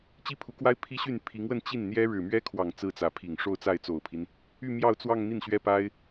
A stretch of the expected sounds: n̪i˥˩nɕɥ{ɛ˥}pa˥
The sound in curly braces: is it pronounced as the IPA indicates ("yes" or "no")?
yes